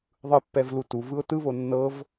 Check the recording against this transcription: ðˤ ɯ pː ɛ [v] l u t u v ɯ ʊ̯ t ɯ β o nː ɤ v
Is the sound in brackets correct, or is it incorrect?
correct